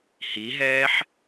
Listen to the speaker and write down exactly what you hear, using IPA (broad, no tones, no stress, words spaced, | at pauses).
hiɦɛːħ